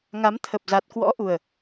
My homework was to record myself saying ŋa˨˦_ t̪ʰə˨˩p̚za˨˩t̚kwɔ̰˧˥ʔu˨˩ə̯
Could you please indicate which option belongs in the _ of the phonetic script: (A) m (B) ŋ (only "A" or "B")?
A